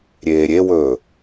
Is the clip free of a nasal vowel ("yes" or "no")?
yes